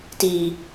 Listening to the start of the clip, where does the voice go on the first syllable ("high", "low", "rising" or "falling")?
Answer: low